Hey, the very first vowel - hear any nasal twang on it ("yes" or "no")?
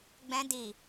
yes